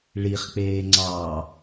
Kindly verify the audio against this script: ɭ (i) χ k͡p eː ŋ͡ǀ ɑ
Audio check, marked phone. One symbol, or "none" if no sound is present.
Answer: i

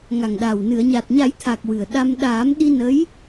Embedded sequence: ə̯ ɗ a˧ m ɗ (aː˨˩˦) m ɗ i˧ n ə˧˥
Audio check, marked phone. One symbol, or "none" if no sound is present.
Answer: aː˨˩˦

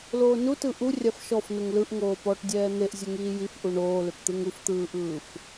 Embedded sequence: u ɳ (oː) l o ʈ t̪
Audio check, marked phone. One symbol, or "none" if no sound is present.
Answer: oː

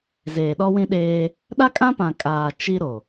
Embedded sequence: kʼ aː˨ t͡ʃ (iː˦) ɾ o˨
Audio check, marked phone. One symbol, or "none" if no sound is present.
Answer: i˦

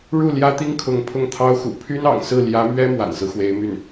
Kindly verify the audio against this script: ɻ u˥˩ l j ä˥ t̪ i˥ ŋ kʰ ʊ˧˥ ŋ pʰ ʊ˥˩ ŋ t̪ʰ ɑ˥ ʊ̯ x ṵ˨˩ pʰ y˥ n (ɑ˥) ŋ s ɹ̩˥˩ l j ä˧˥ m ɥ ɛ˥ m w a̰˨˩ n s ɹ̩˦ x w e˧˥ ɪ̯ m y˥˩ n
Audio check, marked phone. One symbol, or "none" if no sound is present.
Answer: ɑ̰˨˩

